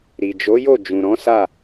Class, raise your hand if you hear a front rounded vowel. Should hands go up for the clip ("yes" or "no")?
no